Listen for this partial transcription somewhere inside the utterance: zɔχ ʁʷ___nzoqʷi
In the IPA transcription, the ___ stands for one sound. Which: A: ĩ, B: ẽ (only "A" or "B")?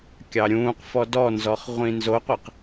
A